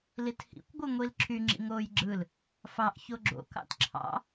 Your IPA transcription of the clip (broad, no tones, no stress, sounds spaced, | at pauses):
l i t h ḭ kʷ ɡʷ ɯ ŋʷ i l ǁʰ y ŋ͡ǁ ḭ ŋ oː j ɡ͡ǁ ɯ l | f ɑ ʔ ç o ɡ͡ǁ o̰ k ɑ̰ t ǁʰ ɑ̰